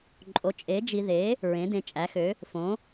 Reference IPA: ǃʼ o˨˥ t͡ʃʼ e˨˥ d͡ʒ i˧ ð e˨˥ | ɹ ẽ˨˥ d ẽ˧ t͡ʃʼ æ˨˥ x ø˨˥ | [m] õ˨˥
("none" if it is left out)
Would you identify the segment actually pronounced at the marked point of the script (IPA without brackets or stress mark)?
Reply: f